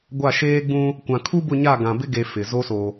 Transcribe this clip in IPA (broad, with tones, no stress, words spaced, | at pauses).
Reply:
ɡʷa˦˨ʃeː˦ɡ͡bũ˦ | kʷã˨kʰu˦bʊ˦˨ɲa˦˨ ɡã˨bɪ˦ɡe˨ fɪ˨ zo˦so˨